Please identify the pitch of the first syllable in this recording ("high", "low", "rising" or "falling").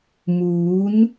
rising